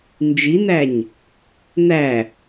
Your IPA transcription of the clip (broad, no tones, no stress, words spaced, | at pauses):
nd͡ʒin̪æɲ | n̪æ